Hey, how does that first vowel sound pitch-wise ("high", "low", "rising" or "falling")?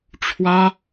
high